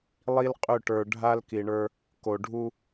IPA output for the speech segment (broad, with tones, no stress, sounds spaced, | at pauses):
lˠ i˦ l qʼ ʏ˦˨ ʈ ə˞˨ ɖʱ a˦ l k i˨ ɳ ə˞˦ | k o˨ ɖʱ u˦